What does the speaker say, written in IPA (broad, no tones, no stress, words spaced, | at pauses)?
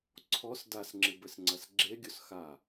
ǀʰɔs dasŋ͡ǁɨbɘsŋ͡ǀɐs ɡ͡ǁeɡʲos xa